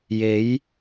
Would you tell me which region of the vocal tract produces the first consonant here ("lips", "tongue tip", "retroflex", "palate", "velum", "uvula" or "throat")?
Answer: palate